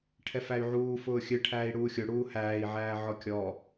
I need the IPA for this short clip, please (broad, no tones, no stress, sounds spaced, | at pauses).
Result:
ʈʰ ɛ f æ y̯ ʕ uː f ʊː xʲ ɨ ʈʰ æː i̯ ɽ uː xʲ ʊ ɽ uː h æː i̯ ʕ æː ʕ ɔ kʲ ɔ